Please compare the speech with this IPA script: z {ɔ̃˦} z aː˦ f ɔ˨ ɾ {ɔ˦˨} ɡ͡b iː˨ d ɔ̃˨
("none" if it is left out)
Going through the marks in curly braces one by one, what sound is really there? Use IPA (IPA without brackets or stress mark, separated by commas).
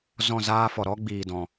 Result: ɔ̃˦˨, ɔ˦